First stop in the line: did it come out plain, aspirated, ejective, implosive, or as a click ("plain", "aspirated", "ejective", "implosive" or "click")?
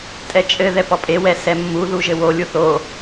ejective